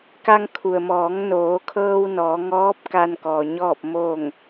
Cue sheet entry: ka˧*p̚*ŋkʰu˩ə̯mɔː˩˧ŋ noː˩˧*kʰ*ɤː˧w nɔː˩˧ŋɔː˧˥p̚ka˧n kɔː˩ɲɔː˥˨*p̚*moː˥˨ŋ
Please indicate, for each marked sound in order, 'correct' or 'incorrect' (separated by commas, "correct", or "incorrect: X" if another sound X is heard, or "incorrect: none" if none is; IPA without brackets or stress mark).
incorrect: none, correct, correct